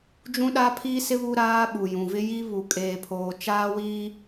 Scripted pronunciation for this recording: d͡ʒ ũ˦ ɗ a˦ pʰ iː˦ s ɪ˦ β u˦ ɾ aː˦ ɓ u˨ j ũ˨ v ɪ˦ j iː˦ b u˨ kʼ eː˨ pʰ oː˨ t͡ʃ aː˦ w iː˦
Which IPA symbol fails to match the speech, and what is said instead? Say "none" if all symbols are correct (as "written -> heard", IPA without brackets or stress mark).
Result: b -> β